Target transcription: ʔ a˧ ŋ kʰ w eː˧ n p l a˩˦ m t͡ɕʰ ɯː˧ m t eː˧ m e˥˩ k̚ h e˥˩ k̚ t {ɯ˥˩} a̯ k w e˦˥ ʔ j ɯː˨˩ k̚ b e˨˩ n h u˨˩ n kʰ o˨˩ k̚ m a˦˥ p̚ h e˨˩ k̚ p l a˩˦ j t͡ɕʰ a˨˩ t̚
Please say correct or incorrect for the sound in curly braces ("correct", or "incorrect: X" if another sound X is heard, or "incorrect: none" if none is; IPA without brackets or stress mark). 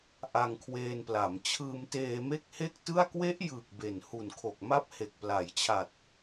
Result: correct